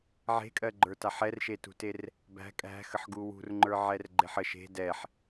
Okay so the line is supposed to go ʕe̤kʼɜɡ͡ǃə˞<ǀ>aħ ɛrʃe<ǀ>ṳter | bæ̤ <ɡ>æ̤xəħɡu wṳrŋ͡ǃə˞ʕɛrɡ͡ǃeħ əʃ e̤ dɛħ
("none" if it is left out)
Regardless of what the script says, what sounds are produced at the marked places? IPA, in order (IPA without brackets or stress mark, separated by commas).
t, t, kʼ